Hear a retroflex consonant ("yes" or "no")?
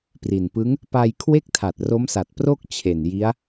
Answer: no